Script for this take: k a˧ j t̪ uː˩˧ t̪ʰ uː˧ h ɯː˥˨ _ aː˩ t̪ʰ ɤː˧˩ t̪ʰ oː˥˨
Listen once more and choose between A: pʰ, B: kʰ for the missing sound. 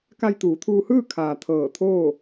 B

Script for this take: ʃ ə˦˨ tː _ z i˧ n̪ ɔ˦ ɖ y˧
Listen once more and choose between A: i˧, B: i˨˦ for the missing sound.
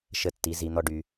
B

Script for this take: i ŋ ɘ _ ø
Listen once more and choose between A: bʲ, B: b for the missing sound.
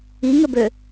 B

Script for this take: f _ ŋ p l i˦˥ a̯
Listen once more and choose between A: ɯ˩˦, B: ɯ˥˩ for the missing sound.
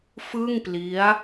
B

